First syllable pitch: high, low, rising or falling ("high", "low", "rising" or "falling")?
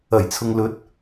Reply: low